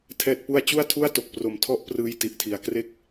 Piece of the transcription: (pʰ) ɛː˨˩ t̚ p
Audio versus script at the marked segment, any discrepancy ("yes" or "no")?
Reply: yes